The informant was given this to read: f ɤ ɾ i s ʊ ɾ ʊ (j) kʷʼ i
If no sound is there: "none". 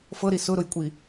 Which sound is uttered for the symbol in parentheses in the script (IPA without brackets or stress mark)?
j